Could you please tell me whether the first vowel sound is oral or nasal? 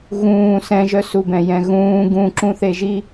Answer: nasal